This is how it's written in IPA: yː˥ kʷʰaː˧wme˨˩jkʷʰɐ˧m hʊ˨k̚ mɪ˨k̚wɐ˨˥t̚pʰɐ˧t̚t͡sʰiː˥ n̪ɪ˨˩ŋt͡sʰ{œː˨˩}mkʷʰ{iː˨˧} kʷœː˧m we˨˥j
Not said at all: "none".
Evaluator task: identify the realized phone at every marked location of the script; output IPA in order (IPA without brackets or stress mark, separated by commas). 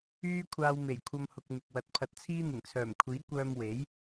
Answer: œː˨˩, iː˨˥